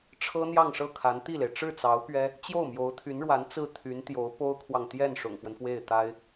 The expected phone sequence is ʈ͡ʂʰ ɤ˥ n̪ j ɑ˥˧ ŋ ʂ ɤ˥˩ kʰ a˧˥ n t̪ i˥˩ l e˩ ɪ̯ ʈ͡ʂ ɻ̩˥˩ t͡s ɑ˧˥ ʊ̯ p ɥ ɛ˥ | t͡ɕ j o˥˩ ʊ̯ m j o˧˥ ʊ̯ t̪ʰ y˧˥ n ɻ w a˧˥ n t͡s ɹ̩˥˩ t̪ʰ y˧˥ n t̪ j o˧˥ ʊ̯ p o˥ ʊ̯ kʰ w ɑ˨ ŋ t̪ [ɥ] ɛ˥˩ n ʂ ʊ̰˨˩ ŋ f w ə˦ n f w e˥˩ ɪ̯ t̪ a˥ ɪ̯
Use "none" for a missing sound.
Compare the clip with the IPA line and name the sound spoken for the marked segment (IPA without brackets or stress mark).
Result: j